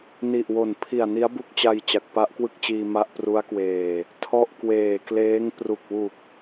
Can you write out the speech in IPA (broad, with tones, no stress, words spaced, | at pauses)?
ni˨˩ʔwo˨˩n pʰi˨˩a̯ni˦˥a̯bu˦˥k̚t͡ɕa˧j t͡ɕa˨˩k̚pa˦˥ʔkwɯ˥˩k̚t͡ɕiː˧ ma˦˥ʔpru˦˥a̯kweː˨˩ | tʰɔ˥˩ʔkweː˨˩ kleː˦˥ŋpru˨˩k̚wu˨˩k̚